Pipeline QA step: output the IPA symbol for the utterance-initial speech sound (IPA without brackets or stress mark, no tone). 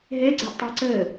ɦ